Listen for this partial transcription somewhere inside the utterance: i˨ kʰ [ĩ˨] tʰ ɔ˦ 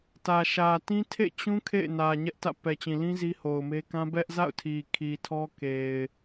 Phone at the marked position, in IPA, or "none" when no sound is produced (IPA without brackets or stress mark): i˨